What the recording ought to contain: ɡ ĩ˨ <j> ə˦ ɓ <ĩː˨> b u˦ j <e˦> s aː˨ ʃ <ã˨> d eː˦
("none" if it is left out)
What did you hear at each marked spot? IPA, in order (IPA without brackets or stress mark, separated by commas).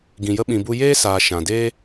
j, ĩ˨, eː˦, ã˨